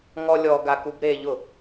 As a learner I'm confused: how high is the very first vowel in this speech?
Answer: mid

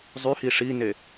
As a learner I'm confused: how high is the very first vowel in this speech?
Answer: high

